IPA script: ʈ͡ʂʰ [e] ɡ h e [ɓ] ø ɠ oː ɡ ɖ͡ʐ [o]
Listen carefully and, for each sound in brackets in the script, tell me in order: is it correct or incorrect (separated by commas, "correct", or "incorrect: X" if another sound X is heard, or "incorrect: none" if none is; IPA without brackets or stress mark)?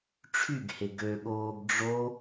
incorrect: y, incorrect: ɡ, correct